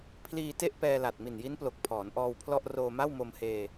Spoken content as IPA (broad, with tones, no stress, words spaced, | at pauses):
pʰliː˧ te˥˩ʔpɛː˧la˨˩t̚ mi˨˩nji˦˥nplo˨˩k̚ pʰɔː˩˦nʔɔː˧wpʰlɔ˥˩ʔ roː˧ma˥˩wmo˧mheː˧